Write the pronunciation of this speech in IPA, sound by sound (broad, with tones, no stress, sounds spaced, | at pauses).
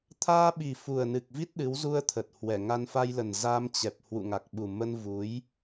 t̪ʰ aː˧ ɓ i˨˩ f u˨˩ ə̯ n ɨ˨˩ k̚ v i˦˥ t̚ ɗ ɨ˨˦ w z u˧ ə̯ t̪ʰ ə˨˩ t̚ h w ɛ˧˩ ŋ a˧ n f a˧ j l ə˨˩ n z a˧ m t͡ɕ ɛ˨˩ p̚ h w ṵ˧˨ ŋ a˨˩ k̚ ɓ u˨˩ m ə˧ n v u˨˦ j